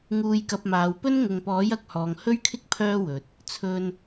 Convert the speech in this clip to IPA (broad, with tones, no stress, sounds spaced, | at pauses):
ŋ uː˧ j k ɐ˧ p̚ m aː˨˧ w p ɵ˥ n ŋ ʊ˨ ŋ p ɔː˨˥ j ɐ˨ k̚ h ɔː˨ ŋ h ɵ˥ ɥ kʰ ɪ˥ k̚ pʰ œː˥ w ɵ˨ t̚ | t͡sʰ ɵ˧ n